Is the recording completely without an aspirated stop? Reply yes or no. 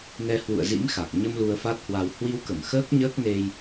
yes